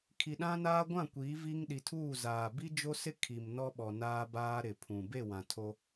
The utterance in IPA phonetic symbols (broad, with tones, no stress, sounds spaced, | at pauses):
kʰ i˨ ɗ ã˦ n aː˦ ɡʷ ã˦˨ kʷ iː˨˦ v i˦ ŋ ɗ i˨ tʰ uː˦˨ z aː˨ b i˦ d͡ʒ o˦ s ɪ˦ kʰ i˨ m n ɔ˦ ɓ ɔ˨ n aː˦ b aː˦ ɾ ɪ˨ pʰ ũ˨ b e˦˨ w ã˨ tʰ o˦